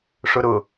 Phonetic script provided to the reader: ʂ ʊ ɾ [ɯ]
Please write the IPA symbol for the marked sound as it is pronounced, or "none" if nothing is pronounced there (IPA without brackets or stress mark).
ʊ